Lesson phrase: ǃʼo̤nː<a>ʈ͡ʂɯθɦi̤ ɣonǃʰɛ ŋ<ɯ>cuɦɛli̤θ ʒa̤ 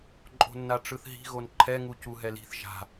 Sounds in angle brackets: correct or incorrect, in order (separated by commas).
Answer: correct, incorrect